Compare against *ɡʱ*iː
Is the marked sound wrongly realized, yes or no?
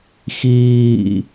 yes